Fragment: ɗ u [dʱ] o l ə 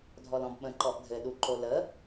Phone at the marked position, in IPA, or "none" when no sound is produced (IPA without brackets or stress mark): ǃ